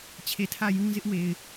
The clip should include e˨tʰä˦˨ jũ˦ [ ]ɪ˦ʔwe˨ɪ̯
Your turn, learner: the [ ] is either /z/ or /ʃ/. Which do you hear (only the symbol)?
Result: z